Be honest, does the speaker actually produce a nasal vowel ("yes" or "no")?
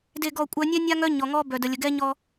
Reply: no